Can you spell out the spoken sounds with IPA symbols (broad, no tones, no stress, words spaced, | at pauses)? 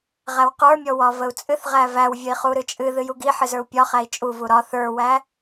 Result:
ʁæwqə˞mʲɔwɒ vəu̯t͡sʼɨθ ʁævæwvʲəi̯χu ɾɨt͡ʃʼɨ ðɨjuɡi ħɨzə˞u̯pʲɒ χæi̯t͡ʃʼu vuɾɒ θə˞wæ